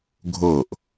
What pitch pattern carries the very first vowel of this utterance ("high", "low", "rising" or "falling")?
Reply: falling